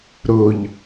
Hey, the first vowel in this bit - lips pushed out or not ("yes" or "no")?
yes